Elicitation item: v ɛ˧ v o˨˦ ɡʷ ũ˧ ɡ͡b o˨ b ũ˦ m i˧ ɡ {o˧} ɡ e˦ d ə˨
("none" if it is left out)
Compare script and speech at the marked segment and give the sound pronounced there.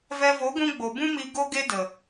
o˦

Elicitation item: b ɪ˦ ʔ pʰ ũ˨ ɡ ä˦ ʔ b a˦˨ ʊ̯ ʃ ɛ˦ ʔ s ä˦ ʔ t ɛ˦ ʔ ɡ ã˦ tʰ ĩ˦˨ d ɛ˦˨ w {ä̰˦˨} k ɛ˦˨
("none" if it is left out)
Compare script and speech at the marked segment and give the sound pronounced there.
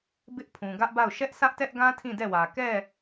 ä˨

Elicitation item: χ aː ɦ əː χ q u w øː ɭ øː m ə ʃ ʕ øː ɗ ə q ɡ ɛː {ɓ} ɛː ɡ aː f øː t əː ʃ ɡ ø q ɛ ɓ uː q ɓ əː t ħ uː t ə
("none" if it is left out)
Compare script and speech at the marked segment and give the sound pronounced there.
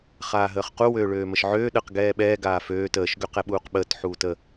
ɓ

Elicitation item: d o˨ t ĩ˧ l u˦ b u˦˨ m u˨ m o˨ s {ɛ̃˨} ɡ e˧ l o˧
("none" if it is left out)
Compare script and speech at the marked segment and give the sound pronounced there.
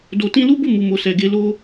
ɛ˨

